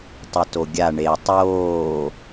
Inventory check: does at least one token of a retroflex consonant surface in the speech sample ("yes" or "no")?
yes